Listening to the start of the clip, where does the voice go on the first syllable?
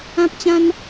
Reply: high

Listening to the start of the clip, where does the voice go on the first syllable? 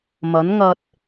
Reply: rising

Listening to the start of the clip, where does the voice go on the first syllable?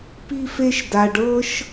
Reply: high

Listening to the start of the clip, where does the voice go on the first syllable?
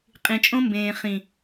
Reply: low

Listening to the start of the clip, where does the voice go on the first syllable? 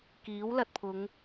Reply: rising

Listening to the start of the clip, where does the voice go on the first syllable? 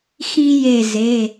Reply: high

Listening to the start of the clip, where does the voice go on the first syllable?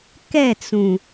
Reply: falling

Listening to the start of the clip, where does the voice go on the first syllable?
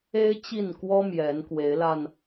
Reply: high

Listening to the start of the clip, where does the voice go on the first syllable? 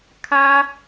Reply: high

